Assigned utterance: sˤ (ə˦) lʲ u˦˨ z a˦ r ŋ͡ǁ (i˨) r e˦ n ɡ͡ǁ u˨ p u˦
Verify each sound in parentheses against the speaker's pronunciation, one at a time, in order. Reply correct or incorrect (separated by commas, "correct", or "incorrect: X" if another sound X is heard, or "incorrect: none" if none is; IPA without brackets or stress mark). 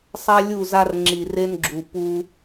incorrect: a˦, correct